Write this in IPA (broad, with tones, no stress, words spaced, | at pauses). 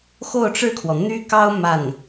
xo˥˧ʊ̯ʈ͡ʂɻ̩˥˩kʰwɔ˩ n̪y˥kɑ˥ʊ̯ ma˥˩n